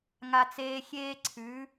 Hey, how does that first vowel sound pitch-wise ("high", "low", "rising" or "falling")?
high